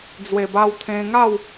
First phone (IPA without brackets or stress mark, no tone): d͡z